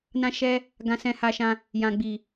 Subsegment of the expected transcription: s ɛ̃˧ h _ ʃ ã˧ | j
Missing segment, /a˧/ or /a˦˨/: a˧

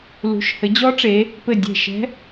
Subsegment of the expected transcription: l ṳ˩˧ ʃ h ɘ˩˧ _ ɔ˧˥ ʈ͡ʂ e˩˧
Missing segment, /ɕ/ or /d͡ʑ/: d͡ʑ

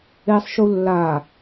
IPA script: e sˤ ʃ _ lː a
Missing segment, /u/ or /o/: u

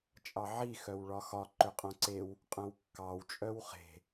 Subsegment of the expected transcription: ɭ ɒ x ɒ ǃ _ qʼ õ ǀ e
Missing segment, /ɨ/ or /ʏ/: ʏ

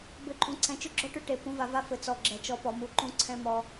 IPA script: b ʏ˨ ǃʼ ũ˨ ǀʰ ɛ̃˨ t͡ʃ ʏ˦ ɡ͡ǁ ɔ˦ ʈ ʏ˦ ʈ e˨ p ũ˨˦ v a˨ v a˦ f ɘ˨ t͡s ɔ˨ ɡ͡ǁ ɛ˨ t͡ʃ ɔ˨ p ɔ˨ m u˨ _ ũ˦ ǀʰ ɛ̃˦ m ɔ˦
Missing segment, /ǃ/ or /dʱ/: ǃ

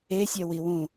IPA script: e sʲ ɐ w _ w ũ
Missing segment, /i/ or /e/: i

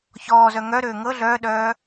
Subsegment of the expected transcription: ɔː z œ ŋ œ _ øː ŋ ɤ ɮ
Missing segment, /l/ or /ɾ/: ɾ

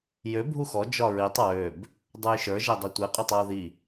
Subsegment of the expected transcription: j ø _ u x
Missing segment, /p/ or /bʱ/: bʱ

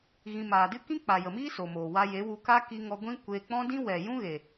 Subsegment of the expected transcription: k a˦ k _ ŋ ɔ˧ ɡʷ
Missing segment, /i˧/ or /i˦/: i˧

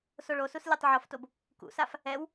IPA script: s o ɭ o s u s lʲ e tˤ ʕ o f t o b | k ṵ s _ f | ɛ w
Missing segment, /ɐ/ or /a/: a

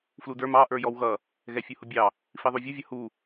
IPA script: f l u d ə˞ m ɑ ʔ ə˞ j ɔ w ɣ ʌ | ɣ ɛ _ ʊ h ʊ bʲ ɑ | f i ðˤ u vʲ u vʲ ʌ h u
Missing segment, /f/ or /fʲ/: fʲ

